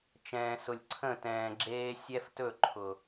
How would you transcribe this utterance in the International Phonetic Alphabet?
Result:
t͡ʃ ɛ̃ː˨ s ʊ˨ lʲ ǀʰ ə̃˦˨ t ɛ̃ː˨ ɡ͡ǁ eː˦ sʲ ɛ˦ f t ɵ˦˨ ǃʰ ʊ˨

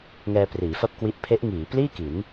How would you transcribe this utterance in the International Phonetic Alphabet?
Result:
ŋ ɛː˧ p r iː˩˦ f a˥˩ p̚ k w i˦˥ ʔ pʰ e˦˥ ʔ ŋ iː˩˦ p l iː˥˩ k i˩˦ n

